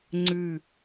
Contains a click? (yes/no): yes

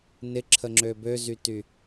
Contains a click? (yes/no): yes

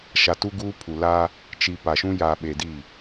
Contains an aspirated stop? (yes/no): yes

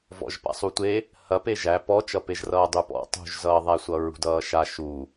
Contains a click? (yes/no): no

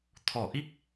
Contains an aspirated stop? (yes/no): yes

